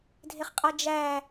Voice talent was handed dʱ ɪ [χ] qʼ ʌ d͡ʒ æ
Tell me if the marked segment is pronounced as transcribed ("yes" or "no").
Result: yes